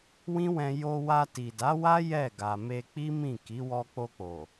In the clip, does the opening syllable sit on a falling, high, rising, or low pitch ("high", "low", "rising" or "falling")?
high